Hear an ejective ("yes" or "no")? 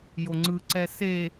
no